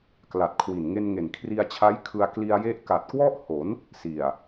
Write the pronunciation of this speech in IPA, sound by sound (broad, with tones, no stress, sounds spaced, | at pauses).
k l a˨˩ t̚ kʰ w i˨˩ n ŋ e˧ n ŋ e˨˩ n kʰ r i˧ a̯ t͡ɕʰ a˦˥ j kʰ ɯ˧ a̯ k l i˧ a̯ j e˦˥ ʔ k a˨˩ t̚ k w ɔ˥˩ ʔ h o˩˦ n | s i˨˩ a̯